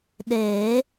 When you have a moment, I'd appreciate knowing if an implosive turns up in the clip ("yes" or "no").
yes